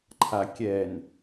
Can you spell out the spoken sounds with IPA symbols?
ǃʰ a kʲ ɛ n

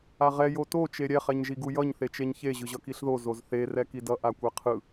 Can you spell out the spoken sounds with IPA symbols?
a ʁ ɛ j o t o t͡ʃ e ɾʲ ɛ χ ɛ ɲ ʒ i ɡ u j ʌ ɲ θ e t͡ʃ e ɲ ç e ʑ ɯ ʑ ʌ k i ɬ ð o z o z θ e r ɛ k i d ʌ ʔ a kʷ ɛ qʰ ɯ

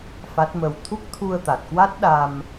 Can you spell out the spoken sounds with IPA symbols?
f a˦˥ t̚ m ə˧ w t̪ʰ u˦˥ k̚ t̪ʰ u˧ ə̯ t̪ a˨˩ t̚ k w a˦˥ t̚ ɗ a˧ m

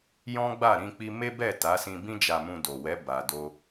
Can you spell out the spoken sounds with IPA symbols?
j ɔ̃˦ ɡ͡b a˦˨ ɾ ĩ˧ k͡p i˧ m e˦ b ɛ˦˨ t a˨˦ s ĩ˧ b ĩ˦ d͡ʒ a˧ m ũ˧ d o˨ w ɛ˨˦ b a˧ d o˦

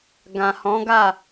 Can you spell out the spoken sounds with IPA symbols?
ɡ ã˨ h ɔ̃˨˦ ɡ a˦˨

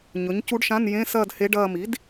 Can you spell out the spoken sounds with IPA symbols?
ɲ ɵ˩˥ ɲ c u˧˥ ɖ ʃ ã˧˥˧ n j ẽ˧˥˧ s ɐː˥˧ d h e˧˥ ɖ ɐː˥˧ m i˩˥ d

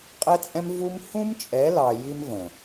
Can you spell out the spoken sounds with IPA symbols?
qʼ ɛ˦ t͡sʼ ɛ̃˦ m v u˦ m h ũ˦ m t͡ʃʼ ɛ˨˦ l ɑ˨ j i˦ m v ə̃˨

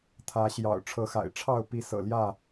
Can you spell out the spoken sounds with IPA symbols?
t̪ʰ ä˨˦ ɕ j ɑ̰˨˩ ʊ̯ ʈ͡ʂʰ ɤ˨˦ x a̰˨˩ ɪ̯ ʈ͡ʂʰ ɑ˥˨ ʊ̯ p i˨˦ s ɤ̰˨˩ l j ä˥˨

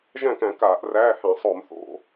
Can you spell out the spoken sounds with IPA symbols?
ʒ æ̃˥˩ k æ̃˧˩˧ k aː˧˩˧ ʔ r æː˧˥˧ h æ̃˧˩˧ sˤ o˧˩˧ m θ o̰˧˥˧

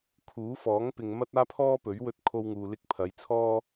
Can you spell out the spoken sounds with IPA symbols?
kʰ uː˨˥ f ɔː˨˥ ŋ p ɪ˨ ŋ m ɐ˥ t̚ aː˥ pʰ ɔː˥ p ɵ˨˥ ɥ w ɵ˥ t̚ kʰ o˥ w ŋ uː˧ l ɪ˥ k̚ pʰ ɐ˨˧ j t͡sʰ ɔː˥

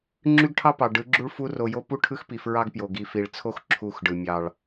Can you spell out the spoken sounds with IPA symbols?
ŋ͡ǁ y˦ ɡ ʈʰ ɑ˦ p ɑ˨ ɖ ɯ˨˦ ɡ͡ǁ u˦ ɭ f u˦ r o˨ j o˦ p u˦ ʈʰ ɯ˦ x p i˨ f ɹ ɑ˦ ɡ p j o˨ ɡ i˨ f i˨ ɭ t͡sʰ o˦ x ǁʰ u˦˨ x ɖ ɯ˨ mʲ ɑ˨ ɭ

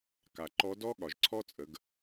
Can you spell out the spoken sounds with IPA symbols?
k a˩ ǃ ɔ˧˥ d ɔ˥ ɠ ɒ˩ ʒ ǀʰ ɔ˥ t͡sʼ ə˩˧ ɡ

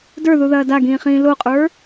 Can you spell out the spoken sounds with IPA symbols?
d ə˞ ð u ð ɐː d a ɡ ĩː χ ĩː l o qʼ ə˞

